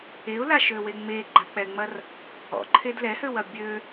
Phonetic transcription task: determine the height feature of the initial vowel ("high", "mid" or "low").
mid